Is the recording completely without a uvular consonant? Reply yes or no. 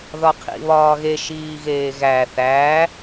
no